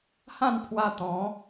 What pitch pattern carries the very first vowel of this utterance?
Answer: falling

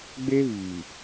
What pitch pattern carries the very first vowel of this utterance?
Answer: high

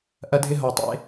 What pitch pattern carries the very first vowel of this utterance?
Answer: high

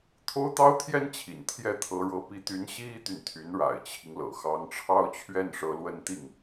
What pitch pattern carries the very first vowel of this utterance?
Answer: high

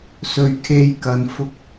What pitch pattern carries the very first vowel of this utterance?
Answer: low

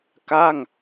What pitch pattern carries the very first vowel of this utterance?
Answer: falling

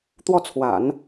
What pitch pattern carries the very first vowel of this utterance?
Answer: falling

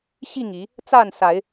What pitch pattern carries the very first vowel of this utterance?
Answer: falling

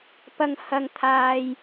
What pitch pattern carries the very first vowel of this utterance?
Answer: high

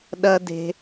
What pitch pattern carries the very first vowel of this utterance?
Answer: high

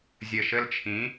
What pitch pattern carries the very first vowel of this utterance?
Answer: low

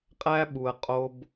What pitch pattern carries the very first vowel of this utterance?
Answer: high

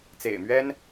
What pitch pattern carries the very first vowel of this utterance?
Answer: low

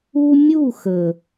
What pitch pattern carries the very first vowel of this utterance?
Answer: high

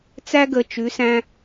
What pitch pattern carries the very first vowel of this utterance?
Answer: high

